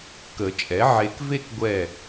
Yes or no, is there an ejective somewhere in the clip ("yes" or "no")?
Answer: yes